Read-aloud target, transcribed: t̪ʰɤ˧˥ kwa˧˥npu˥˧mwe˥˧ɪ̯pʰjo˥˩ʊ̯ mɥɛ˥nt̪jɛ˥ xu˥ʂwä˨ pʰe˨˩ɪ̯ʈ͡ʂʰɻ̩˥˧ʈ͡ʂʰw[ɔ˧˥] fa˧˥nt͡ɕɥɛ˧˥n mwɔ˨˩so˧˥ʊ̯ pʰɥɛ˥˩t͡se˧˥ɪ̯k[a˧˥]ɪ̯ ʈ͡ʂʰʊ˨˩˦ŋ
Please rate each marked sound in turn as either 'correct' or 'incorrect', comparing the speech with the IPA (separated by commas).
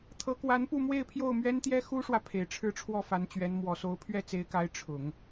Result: incorrect, correct